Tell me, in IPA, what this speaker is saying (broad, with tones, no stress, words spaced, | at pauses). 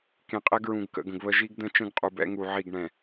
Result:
kẽ˨qʼɛ˦ɡɹũ˨ɡ kə̰˨ɡə̃˨ɡβə˦ ʒi˦ɡdə̃˦ t͡ʃə̃˦ɡqʼu˨bɛ̰˦ ŋu˨ ʕi˦˨ɡɳɛ̃˨